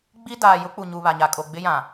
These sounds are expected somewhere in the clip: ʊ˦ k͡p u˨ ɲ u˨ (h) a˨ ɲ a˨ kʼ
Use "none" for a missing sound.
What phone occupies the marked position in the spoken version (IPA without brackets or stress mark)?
β